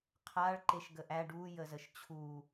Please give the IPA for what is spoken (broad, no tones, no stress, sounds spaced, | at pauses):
qʰ a ɭ ǃ e ʃ ɡ ə ʔ æ ɖ u j ə z ə ʃ t͡ɕʰ u